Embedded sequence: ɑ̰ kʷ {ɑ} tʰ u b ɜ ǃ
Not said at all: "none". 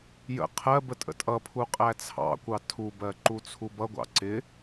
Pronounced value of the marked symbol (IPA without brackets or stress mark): ɑ